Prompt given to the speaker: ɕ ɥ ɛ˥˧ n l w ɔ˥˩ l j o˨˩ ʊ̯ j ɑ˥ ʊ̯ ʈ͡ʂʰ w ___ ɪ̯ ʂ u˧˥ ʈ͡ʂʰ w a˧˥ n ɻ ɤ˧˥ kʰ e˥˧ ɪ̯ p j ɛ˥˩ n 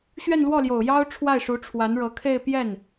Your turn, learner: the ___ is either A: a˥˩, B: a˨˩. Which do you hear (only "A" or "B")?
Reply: A